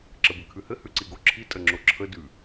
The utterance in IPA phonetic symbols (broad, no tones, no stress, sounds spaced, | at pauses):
ǁ ə b ɘ kʰ ʉ h ɘ h ʉ ǀ i ɡ o ǁʰ i tʼ ə ŋ͡ǁ o ǁʰ ə d ʉ